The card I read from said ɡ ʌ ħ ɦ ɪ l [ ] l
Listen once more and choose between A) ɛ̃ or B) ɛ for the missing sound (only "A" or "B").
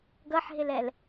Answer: B